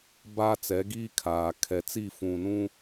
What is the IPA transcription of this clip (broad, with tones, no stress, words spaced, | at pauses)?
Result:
baː˦t͡sɛ˨˦ɡiː˦ kʰaː˨ kʰɛ˨t͡si˦˨fũ˨nũ˦